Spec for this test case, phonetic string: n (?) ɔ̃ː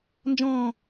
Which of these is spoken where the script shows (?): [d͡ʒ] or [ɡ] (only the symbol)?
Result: d͡ʒ